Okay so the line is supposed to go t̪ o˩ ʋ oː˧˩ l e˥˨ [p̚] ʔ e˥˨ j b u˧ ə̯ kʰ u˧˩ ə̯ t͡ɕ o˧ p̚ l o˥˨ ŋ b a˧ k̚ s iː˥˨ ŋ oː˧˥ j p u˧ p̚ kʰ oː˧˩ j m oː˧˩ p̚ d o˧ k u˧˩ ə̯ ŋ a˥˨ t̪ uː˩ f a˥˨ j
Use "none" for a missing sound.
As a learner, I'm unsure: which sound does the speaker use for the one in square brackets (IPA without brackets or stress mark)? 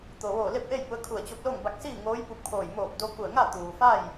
p̚